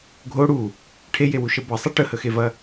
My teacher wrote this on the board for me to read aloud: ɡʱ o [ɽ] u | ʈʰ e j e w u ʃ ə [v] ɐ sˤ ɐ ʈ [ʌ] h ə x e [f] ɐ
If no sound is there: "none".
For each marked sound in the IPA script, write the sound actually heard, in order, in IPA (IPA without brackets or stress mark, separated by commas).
ɽ, b, ə, v